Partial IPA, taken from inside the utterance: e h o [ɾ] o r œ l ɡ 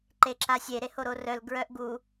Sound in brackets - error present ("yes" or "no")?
no